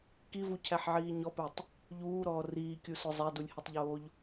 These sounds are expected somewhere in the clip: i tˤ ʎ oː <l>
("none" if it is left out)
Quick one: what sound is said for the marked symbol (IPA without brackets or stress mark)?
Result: ʎ